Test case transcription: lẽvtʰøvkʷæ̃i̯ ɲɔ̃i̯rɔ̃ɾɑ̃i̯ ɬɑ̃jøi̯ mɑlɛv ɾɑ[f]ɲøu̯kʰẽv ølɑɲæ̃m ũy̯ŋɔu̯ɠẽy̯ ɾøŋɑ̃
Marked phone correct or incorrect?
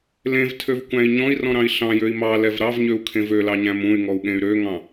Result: incorrect